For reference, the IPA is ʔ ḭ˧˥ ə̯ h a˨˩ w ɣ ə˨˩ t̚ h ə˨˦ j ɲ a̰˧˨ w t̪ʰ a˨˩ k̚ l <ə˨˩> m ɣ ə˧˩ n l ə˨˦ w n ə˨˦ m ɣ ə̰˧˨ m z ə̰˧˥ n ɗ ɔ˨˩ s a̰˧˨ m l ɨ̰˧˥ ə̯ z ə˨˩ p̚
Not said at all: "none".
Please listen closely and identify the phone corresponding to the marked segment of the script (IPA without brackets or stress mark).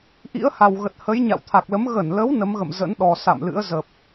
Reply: ə˨˦